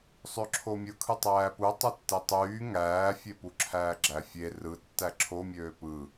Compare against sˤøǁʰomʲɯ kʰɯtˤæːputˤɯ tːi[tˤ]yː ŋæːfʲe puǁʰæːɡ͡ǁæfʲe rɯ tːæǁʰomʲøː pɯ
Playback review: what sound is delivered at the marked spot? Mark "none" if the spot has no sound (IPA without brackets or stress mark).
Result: tˤ